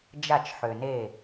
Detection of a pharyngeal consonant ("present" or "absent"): present